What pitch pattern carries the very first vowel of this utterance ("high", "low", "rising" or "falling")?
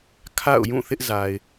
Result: falling